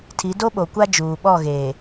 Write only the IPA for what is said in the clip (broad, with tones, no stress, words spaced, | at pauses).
tʰi˨˦ do˦ɓo˨kʷa˦ d͡ʒuː˨ɓɔ˦˨ ɣeː˨